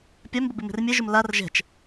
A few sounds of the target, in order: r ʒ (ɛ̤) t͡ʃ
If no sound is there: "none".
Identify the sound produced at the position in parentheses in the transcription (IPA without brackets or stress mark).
ɛ̤